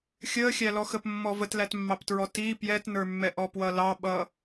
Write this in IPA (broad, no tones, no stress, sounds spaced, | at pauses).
xʲ əː xʲ æ l ɔ x ə p mː ɔ v ə t l æ t mː ɑ p t ɹ ɔ t i p j ɛ t n ə˞ mː ɛ ʔ ɔ p w ʌ l ɑ ɓ ʌ